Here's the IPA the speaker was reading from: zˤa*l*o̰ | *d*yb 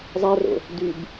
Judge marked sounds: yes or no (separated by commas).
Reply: no, yes